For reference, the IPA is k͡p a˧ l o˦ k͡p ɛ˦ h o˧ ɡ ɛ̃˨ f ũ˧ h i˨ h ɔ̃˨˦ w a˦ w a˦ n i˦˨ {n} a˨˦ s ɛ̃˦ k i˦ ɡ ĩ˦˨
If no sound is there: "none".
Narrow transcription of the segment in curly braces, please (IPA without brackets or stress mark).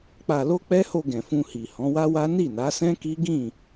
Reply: n